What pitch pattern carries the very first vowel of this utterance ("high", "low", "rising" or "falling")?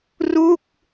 falling